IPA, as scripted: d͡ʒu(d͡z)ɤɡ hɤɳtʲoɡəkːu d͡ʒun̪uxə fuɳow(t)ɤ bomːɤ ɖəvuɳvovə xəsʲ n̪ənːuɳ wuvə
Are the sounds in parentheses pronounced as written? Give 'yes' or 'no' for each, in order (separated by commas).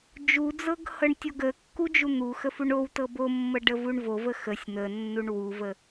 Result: yes, yes